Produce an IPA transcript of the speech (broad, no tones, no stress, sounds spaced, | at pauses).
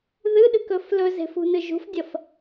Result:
ð ɨ ɗ ɨ k ɵ f l ɵ z e̤ f ṳ n ɨ ʒ ṳ f dʲ ɐ f